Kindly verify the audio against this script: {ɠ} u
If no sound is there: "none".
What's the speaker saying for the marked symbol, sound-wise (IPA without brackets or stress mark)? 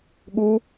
ɠ